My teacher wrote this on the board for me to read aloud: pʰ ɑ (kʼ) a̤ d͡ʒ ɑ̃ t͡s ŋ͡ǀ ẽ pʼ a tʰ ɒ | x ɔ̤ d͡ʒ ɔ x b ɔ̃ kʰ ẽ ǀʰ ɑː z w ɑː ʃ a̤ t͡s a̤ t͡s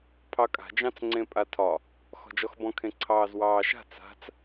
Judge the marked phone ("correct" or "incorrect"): correct